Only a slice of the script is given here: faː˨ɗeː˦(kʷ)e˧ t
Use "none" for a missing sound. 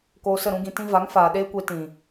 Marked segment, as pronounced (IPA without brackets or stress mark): kʷ